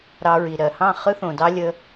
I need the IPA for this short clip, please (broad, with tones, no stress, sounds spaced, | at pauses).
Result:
ɾ ɑ˧ ɹ i˨ ɾ ɜ˨ h ɑ̃˦˨ χ ɯ˦ θ õ˨ d ɑ˦ lʲ ə˦